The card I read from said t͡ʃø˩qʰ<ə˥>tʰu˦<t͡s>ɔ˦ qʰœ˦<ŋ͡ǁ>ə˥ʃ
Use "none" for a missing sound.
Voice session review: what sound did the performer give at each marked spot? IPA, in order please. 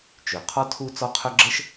ɔ˥, t͡s, ɡ͡ǁ

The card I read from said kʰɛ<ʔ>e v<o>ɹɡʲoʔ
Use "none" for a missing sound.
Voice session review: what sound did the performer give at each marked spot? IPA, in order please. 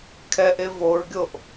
ʔ, o

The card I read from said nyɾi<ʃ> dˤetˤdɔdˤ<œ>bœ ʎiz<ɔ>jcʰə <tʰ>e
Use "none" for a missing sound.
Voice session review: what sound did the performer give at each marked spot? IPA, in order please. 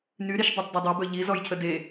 ʃ, ø, ɔ, d

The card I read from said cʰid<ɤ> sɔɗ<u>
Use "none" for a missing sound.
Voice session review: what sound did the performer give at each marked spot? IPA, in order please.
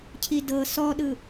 ɤ, ɯ

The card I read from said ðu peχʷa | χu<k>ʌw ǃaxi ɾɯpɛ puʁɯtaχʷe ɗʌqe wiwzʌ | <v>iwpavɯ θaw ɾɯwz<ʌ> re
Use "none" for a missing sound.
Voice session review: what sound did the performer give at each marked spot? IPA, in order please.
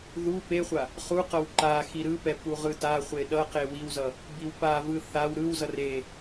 q, b, ʌ

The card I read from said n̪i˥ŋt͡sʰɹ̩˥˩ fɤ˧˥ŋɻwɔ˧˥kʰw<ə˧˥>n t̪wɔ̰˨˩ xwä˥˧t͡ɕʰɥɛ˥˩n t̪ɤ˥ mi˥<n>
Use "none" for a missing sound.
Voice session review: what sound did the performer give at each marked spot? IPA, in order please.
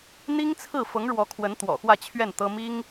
ə˧˥, ŋ

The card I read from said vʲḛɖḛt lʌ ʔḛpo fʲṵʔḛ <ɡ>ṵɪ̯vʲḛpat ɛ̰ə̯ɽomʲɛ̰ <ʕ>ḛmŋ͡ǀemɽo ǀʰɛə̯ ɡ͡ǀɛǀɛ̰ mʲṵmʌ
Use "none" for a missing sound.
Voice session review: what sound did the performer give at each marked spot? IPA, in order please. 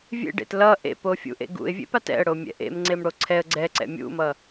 ɡ, ʔ

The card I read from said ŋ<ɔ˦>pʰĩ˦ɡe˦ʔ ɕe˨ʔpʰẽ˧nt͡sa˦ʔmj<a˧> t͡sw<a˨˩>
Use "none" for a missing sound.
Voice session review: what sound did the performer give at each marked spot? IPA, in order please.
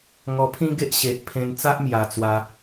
ɔ˧, a˨˩, a˧

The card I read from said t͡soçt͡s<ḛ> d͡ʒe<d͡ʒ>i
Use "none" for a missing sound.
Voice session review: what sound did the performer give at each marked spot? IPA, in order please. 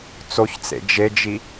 ḛ, d͡ʒ

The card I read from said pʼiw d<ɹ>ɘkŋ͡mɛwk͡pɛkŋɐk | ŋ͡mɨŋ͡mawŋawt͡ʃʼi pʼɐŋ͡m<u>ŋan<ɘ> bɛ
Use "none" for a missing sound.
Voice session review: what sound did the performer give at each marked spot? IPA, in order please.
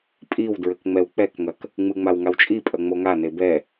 ɹ, o, e

